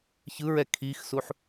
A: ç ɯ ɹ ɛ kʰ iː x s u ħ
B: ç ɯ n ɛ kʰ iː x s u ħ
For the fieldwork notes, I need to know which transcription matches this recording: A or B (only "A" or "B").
A